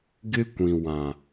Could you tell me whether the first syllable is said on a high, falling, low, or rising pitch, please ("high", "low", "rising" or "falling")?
high